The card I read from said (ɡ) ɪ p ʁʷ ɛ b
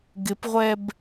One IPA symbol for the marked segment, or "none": ɡ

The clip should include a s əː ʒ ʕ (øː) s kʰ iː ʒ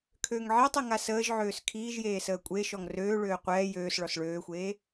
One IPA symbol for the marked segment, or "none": øː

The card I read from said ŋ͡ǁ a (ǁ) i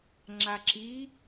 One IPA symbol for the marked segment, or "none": ǁ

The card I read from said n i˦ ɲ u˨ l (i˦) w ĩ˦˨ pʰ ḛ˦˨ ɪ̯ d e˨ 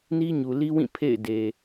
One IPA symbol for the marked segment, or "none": i˦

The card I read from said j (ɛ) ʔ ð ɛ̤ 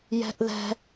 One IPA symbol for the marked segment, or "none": ɛ̤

